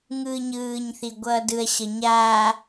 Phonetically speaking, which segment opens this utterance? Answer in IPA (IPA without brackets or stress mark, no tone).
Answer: ŋ